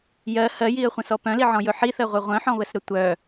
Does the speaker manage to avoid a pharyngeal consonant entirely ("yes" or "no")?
no